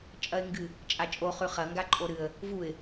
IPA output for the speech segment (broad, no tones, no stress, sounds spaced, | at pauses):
t͡ʃʼ ɐ ɪ̯ ŋ ɡ ɨ | t͡ʃʼ a t͡ʃʼ o χ ʉ χ ɐ ŋ ɡ a ǃʼ o ɾ ɨ ə̯ | v u ɪ̯